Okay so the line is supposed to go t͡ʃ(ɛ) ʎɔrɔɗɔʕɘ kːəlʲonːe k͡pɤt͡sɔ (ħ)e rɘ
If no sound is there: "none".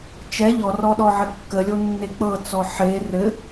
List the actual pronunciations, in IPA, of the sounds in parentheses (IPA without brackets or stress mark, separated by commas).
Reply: ɛ, ħ